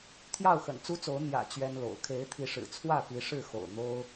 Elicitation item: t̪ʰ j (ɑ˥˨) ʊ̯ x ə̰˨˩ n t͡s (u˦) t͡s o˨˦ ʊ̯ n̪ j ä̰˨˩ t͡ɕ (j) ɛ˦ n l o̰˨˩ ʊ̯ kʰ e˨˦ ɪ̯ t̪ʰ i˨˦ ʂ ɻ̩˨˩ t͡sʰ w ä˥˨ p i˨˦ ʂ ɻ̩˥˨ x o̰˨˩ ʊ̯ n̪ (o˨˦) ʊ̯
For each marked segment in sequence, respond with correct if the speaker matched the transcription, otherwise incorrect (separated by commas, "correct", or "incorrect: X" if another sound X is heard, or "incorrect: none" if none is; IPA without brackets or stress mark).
correct, correct, incorrect: ɥ, incorrect: o˦